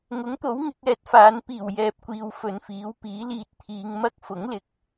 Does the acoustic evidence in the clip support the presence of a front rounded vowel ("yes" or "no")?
no